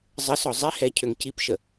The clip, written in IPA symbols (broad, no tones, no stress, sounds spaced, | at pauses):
zˤ ə s ɔ zˤ i h ɛ cʰ ø ŋ c i p ʃ ə